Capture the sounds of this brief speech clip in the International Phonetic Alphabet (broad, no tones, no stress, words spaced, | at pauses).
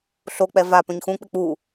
ɬok͡pɛ va pœ̃ɲxũk͡pɪ k͡pu